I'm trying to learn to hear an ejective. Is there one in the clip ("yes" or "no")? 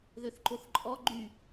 yes